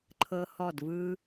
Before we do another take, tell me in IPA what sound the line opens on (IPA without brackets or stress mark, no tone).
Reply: ǃʰ